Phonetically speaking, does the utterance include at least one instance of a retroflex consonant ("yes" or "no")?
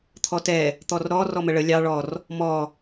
yes